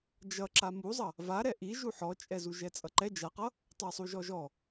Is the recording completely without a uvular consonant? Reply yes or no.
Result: no